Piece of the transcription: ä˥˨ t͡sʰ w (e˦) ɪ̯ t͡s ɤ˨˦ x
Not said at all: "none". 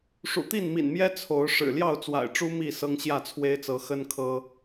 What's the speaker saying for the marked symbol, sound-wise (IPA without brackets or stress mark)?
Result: e˦